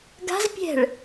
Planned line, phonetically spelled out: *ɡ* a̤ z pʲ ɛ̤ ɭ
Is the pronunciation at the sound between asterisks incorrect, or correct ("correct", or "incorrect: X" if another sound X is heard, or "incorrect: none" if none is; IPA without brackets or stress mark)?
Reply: correct